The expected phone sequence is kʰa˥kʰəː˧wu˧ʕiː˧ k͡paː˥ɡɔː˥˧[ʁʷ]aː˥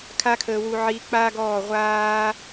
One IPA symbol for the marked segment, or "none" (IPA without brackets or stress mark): ʁʷ